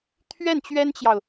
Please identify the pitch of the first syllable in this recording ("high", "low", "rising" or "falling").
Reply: falling